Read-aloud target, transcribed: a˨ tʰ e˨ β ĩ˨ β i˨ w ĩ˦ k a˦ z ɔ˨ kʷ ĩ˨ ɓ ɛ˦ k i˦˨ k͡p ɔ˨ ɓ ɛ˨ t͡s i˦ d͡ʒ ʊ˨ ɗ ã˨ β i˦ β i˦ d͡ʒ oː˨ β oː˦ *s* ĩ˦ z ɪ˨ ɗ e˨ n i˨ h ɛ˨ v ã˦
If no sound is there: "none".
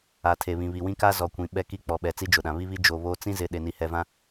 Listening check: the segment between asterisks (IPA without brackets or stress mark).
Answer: t͡s